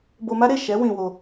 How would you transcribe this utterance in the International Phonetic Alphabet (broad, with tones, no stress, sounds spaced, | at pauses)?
b o˧ m a˦ ɾ e˦˨ ʃ ɛ˨˦ w ĩ˧ w o˧